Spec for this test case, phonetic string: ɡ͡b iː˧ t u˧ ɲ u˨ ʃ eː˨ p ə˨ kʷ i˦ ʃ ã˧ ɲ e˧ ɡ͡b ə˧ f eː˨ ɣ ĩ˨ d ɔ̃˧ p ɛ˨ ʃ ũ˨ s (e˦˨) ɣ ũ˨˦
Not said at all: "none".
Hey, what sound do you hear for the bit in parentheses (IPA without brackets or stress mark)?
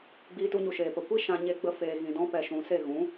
e˦˨